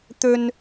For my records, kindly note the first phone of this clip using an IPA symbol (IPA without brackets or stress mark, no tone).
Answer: t̪